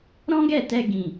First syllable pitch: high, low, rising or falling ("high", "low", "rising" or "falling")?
high